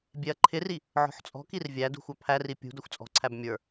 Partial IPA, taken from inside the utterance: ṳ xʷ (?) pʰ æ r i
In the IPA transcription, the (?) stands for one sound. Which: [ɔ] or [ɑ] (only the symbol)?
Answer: ɑ